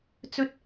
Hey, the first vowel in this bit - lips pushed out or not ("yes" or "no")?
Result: yes